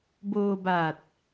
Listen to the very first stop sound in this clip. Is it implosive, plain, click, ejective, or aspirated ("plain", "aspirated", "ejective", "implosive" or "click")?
plain